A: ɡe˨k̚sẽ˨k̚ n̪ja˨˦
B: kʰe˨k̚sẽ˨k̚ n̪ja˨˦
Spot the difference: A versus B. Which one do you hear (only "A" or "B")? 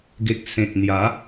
A